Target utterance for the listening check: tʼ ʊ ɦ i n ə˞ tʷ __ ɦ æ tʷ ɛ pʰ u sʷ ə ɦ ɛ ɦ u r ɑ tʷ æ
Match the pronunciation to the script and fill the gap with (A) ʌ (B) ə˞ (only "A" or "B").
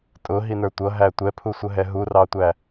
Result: A